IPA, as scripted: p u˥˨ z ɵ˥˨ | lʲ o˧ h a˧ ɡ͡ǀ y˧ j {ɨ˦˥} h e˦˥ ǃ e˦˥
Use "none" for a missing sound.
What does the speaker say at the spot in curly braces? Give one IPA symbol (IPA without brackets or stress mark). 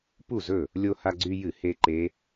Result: ɨ˧˩˧